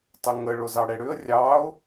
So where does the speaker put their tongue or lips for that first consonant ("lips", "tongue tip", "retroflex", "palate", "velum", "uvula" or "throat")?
tongue tip